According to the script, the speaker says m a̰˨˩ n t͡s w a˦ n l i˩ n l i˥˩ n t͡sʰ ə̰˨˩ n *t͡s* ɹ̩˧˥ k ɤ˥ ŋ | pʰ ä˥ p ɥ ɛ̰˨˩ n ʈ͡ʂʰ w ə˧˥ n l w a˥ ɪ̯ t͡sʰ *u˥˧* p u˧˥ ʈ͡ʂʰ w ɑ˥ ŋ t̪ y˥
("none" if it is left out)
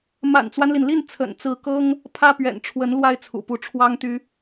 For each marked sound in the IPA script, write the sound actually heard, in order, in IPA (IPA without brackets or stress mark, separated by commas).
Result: t͡s, ṵ˨˩